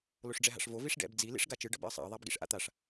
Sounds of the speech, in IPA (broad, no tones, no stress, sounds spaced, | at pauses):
l o ʂ ɖ͡ʐ ɛ ɦ a̰ ʂ v o v i ʂ ɖ ɛ̰ b d͡z i l ḭ ʂ ɡ a t͡ʃ ɯ ɖ ʌ b ḭ ə̯ sˤ a̰ ə̯ ðˤ a b ɡ ḭ ʂ ʔ a̰ t̪ a ʂ